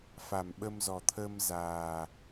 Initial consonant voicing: voiceless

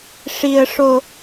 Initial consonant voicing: voiceless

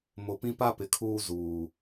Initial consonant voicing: voiced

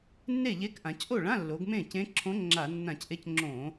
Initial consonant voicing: voiced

